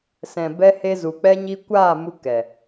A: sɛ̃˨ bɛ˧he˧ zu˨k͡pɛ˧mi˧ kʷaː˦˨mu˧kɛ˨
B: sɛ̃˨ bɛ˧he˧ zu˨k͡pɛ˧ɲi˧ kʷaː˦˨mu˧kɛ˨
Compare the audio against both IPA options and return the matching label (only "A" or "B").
B